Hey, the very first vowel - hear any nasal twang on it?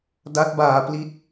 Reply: no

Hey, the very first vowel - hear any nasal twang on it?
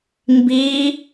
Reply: no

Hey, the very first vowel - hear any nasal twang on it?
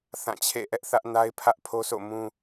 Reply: yes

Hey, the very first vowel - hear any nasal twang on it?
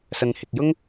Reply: no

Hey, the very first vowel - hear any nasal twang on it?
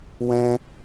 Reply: yes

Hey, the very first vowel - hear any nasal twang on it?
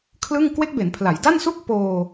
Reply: no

